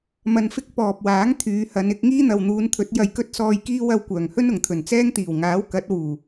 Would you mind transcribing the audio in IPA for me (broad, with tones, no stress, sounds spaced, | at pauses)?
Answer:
m ɐ˧ n f ɪ˥ k̚ p ɔː˨ p̚ w aː˨˥ ŋ t̪ʰ yː˨˧ h ɐ˨˧ n ɪ˨˥ k̚ ŋ iː˥ n̪ ɐ˨ w n̪ uː˨˧ n t̪ʰ ɵ˨˥ t̚ j ɐ˧ j k ɵ˥ t̚ s ɔː˧ j k iː˥ w ɐ˧ w kʷ œː˨˩ ŋ h ɵ˥ n ʊ˨˩ ŋ t̪ʰ ɵ˨˩ n t͡s ɛː˥ ŋ t̪ iː˨˩ w ŋ aː˨˥ w k ɐ˨˥ t̚ w uː˨˩